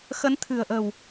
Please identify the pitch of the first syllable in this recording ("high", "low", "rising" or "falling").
rising